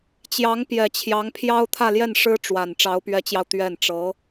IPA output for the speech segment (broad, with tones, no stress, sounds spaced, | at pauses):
t͡ɕ j ɑ˧˥ ŋ p j ɛ˨˩ t͡ɕʰ j ɑ˧˥ ŋ pʰ j ɑ˥ ʊ̯ t̪ʰ ä˥˧ l j ɛ˥˩ n ʂ ɻ̩˥ ʈ͡ʂ w a˨˩ n ʈ͡ʂ ɑ˧˥ ʊ̯ p ɥ ɛ˧˥ t͡ɕ j ɑ˧ ʊ̯ t̪ ɥ ɛ˥˩ n ʈ͡ʂ ɤ˧˥